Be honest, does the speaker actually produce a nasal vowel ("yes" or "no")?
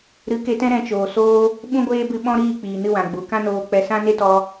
yes